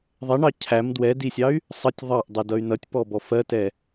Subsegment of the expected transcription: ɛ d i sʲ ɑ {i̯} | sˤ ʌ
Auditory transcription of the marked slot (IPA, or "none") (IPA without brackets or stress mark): y̯